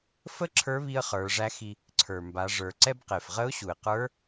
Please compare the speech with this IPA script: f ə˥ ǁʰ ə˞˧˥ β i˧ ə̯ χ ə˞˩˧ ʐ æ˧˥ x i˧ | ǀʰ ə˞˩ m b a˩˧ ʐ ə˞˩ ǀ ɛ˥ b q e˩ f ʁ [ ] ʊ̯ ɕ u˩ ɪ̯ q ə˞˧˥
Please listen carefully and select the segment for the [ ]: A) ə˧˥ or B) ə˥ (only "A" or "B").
A